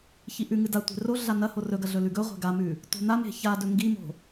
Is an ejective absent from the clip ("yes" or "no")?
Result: yes